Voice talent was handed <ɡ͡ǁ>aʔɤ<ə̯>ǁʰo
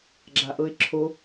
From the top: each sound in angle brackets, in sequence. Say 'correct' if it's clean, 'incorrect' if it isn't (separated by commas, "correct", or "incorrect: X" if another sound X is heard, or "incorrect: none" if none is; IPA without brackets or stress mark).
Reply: correct, incorrect: ɪ̯